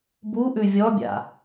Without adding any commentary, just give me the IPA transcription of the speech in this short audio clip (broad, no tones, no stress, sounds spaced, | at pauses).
b u ʔ ʉ vʲ ɔ bʲ a̰